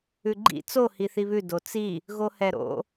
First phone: ʉ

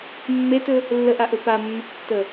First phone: mː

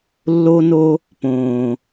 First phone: lː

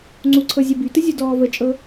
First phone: ŋ͡ǀ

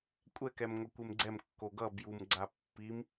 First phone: kʷʼ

